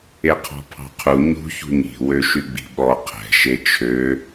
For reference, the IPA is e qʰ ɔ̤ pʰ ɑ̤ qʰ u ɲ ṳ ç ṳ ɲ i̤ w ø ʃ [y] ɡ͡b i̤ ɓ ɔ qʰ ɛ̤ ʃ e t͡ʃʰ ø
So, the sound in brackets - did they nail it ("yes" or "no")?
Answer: yes